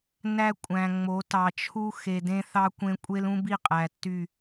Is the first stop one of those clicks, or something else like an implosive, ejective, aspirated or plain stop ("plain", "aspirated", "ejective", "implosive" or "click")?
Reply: ejective